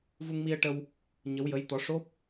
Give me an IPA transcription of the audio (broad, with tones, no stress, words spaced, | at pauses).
vu˧ŋmi˧ə̯ʈə˧w | ɲə˧˥wjə˧˥jt̪ɔ˧˥ ʂo˦˥p̚